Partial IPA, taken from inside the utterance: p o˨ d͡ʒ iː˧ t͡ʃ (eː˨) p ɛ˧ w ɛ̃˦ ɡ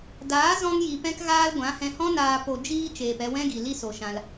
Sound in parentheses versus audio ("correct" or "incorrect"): correct